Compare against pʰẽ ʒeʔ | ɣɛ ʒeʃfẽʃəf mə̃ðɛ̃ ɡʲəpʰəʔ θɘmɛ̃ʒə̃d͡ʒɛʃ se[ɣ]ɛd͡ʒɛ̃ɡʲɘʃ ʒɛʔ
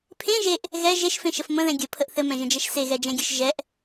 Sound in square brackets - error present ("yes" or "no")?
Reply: no